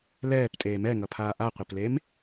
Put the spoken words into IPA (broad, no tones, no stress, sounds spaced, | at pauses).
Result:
l ɛː p tʼ eː m ɛ ŋ ʌ pʰ aː ʔ a qʷ e p l e m